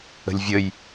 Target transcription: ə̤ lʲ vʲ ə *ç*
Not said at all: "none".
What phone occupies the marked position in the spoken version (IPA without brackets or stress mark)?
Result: j